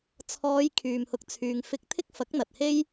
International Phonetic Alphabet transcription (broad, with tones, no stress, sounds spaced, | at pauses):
t͡sʰ ɔː˨˧ j kʰ yː˨ m h ʊ˨˥ k̚ t͡sʰ yː˨ ŋ f ɪ˧ k̚ t̪ʰ ɪ˥ k̚ f ɐ˨˥ k̚ n̪ ɐ˨ t̚ h e˥ j